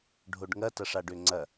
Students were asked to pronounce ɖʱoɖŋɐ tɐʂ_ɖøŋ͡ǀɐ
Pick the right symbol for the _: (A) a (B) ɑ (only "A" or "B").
A